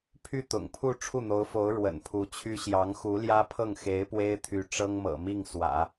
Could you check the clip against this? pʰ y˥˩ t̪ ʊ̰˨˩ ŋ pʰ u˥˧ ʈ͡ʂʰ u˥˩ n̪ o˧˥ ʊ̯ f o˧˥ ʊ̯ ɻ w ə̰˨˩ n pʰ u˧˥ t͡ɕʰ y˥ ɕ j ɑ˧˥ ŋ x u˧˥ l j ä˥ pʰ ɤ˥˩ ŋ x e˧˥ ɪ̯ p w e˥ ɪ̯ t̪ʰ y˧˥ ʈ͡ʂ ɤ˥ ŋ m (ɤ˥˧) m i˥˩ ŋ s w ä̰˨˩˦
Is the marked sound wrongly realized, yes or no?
yes